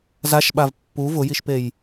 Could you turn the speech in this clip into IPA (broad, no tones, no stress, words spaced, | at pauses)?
zaʃɓav pːu vʊjiʃpej